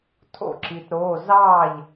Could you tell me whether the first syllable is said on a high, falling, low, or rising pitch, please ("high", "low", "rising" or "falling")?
falling